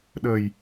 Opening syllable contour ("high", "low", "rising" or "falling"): low